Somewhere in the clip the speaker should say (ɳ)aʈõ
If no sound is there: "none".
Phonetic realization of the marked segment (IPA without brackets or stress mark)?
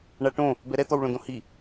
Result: ɳ